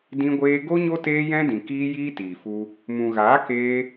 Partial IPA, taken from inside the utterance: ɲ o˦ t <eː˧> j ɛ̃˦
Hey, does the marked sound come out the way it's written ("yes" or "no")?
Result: no